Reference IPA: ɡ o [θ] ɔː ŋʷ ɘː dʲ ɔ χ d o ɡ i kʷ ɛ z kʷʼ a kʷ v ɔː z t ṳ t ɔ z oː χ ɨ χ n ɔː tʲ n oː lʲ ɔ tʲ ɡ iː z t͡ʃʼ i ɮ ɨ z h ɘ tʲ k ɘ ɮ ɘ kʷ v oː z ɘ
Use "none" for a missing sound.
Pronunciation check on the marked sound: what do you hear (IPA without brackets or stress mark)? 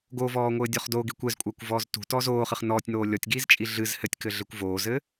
v